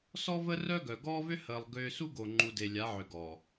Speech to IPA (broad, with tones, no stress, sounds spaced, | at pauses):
s ɔ˦ v ə˦ r œ˦ ɡ œ˨ ɡ ɔː˦ v ʏ˦ h əː˨ lˠ ɡ ʏː˨ s u˦ ɡ o˨ ŋ͡ǃ u˨ d e˨ lʲ a˨˦ ʕ ʏ˨ ɡ ɔː˨